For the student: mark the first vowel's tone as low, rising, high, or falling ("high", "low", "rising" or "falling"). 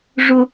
high